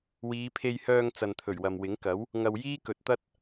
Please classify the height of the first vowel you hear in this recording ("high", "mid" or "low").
high